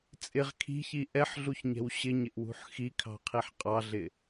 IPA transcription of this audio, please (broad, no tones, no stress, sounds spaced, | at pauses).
t͡sʼ ɪ ʁ kʰ i̤ ç i ʔ ɛ ħ ɮ u ç ɲ ɛ̤ w ɕ ɪ ɲ ɪ ʔ w ṳ ħ x i kʰ ɑ̤ qʰ i ħ qʼ ɑ ɮ ɪ